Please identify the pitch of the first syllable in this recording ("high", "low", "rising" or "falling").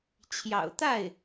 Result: low